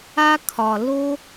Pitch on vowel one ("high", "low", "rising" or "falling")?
high